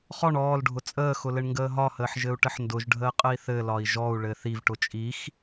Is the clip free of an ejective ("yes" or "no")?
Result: no